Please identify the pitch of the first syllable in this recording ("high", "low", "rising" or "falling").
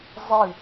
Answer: falling